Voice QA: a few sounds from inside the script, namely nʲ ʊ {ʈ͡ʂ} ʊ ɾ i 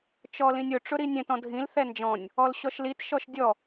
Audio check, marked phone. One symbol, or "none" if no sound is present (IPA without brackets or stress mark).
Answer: ʈ͡ʂ